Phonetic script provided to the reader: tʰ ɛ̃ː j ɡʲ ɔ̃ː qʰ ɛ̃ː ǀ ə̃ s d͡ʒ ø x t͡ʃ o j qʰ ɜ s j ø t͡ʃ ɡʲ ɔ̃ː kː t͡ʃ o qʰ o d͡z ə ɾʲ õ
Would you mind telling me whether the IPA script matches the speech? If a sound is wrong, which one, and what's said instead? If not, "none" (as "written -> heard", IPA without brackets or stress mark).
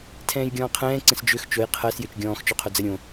kː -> x